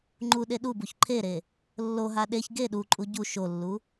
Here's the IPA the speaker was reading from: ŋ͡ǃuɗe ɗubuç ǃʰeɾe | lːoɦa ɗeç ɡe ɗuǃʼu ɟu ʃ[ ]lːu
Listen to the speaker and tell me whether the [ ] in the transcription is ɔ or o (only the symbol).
o